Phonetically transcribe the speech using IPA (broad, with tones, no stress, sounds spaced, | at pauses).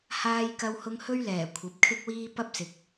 h aː˥ j k ɐ˥ w h ʊ˥ ŋ h ɵ˥ ɥ l ɛː˨˩ kʷʰ ɐ˨˥ p̚ kʰ ɪ˥ k̚ w iː˥ p ɐ˥ p̚ s ɪ˨ k̚